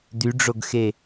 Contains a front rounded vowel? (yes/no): yes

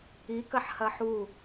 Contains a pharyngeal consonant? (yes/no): yes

